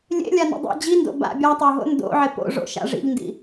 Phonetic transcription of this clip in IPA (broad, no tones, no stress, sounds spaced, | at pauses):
lʲ ḛ lʲ a n ḭ dˤ ḛ d͡ʑ i n d o̰ b a̰ bʲ a tˤ o ɦ o̰ n d o̰ ʕ ɪ p o̰ ʐ o̰ ʃ a̰ ʐ ḭ ʎ n d ḭ